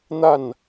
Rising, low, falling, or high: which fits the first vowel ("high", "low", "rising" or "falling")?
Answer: falling